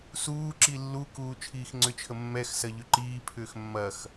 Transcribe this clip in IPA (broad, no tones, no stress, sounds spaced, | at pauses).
s uː ǁ i lː u k uː t͡ʃʰ iː x ŋ͡ǀ ʏ t͡ʃʰ ə mː ɛ x s ɐ ʎ ʏ ǃ iː pʰ ʏː x mː ɐ x